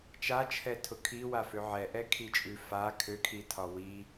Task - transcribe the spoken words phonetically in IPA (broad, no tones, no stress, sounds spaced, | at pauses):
t͡ʃ a t͡ʃʰ ɛ tʰ ʊ kʰ i w a f ø ʕ ɛ ʔ ɛ kʰ i t͡ʃʼ ʉ f a kʰ ø kʰ i tʰ ɒ w i